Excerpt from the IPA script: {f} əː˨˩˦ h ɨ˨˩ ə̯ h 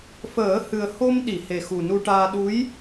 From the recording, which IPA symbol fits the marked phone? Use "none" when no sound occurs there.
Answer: f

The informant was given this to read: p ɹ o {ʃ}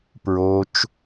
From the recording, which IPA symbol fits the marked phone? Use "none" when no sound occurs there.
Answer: t͡ʃ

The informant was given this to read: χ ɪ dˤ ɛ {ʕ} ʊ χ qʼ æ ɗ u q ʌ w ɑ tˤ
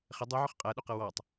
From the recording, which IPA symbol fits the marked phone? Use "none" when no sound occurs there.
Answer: ʕ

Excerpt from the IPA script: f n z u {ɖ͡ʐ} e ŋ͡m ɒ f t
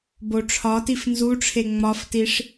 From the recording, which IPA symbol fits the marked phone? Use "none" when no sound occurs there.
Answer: ʈ͡ʂʰ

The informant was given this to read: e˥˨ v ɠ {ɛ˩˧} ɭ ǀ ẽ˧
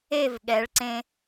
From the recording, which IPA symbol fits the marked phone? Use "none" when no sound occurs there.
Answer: ɛ˩˧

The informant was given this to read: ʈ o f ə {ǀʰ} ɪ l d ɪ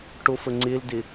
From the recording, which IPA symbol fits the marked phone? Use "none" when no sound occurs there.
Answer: ŋ͡ǀ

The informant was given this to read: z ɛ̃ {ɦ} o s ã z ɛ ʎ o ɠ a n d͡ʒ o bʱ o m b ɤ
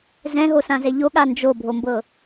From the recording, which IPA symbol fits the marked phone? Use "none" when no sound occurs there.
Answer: ɦ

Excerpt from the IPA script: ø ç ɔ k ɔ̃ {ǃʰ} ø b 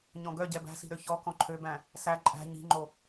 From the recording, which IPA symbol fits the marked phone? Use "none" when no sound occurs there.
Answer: ǃʰ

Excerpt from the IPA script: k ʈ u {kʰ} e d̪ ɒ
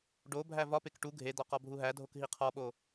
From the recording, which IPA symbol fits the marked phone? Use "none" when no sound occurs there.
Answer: ɡʱ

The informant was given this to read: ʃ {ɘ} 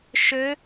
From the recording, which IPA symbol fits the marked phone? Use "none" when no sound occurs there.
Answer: ɘ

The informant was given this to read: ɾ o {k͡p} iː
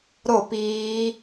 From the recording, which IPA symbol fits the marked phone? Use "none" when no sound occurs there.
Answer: p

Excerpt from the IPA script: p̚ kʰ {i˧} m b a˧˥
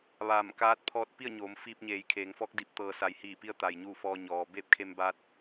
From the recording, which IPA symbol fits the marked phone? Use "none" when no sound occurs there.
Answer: e˧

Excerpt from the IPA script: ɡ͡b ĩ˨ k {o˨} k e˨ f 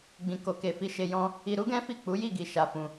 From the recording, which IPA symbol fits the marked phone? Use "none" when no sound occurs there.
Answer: o˨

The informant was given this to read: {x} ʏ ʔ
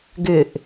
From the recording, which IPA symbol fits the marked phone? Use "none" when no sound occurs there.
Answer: ɡ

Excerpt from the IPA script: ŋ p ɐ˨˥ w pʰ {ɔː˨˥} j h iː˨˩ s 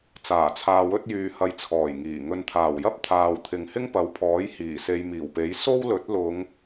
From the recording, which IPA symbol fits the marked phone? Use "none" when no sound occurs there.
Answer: ɔː˨˥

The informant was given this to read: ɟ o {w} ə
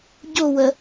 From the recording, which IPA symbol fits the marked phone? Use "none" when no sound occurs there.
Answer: w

